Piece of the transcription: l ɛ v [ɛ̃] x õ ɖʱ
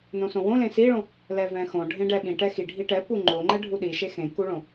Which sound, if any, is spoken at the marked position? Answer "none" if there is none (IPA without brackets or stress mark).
ɛ̃